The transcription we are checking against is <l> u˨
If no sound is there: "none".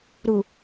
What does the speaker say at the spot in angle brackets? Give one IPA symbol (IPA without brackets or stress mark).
ɾ